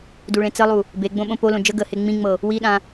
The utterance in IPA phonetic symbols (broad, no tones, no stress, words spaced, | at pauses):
duɭẽt͡səlˠu | beɡ͡bõ ɓõpolõ d͡ʒə ɡəhe ŋ͡mĩŋ͡mɤ | wiɗã